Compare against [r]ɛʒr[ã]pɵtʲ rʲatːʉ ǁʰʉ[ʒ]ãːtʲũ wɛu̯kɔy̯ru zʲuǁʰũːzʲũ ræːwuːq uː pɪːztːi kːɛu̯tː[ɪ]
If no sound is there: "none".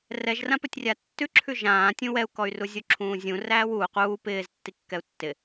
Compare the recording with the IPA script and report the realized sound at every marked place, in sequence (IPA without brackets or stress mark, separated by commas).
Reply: r, ã, ʒ, ɪ